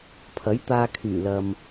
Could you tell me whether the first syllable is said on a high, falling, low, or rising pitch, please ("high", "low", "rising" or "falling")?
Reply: rising